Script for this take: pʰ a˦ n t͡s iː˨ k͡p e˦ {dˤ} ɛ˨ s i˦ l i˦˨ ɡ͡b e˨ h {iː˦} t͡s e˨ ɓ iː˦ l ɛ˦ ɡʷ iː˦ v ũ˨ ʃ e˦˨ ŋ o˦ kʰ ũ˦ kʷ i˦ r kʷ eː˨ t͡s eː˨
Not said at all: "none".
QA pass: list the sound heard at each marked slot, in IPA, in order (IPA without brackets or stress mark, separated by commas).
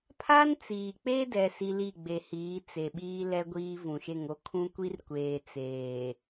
d, iː˨˦